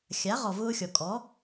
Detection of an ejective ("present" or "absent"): present